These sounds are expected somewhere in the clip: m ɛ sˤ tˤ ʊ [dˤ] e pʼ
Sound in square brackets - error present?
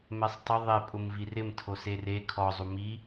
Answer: yes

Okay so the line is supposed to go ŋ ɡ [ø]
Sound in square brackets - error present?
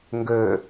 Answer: no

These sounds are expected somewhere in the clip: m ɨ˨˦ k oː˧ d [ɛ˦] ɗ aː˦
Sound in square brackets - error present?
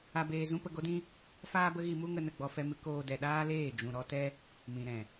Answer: yes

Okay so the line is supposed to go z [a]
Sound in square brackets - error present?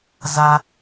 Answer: no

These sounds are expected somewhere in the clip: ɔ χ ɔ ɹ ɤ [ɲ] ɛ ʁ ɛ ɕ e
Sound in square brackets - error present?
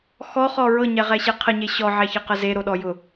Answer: no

